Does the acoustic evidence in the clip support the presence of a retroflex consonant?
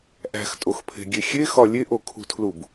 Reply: no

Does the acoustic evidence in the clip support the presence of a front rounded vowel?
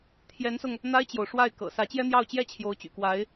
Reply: yes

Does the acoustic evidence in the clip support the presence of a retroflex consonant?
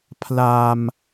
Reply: no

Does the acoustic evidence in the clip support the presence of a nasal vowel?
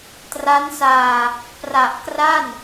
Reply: no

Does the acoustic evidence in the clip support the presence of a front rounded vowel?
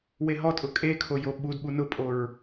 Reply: no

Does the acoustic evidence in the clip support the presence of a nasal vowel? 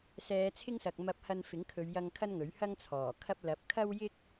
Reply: no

